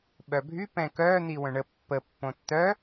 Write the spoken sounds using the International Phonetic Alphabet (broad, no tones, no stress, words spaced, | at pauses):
ɓœbʱy pɛ̃kœ n̪iwœ̃ɳə pːə pːõtːœ